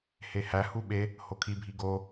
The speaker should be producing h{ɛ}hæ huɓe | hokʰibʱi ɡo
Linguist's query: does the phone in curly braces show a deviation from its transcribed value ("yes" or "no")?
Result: yes